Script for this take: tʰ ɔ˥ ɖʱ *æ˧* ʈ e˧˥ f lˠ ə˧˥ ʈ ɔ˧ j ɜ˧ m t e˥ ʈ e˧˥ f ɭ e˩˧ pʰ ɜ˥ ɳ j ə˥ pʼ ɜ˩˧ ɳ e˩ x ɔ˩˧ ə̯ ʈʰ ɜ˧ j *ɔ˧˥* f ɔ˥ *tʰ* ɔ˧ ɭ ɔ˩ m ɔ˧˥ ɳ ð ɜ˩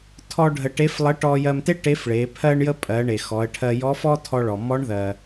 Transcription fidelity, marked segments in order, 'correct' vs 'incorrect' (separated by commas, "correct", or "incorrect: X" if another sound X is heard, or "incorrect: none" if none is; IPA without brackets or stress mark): incorrect: ə˧, correct, correct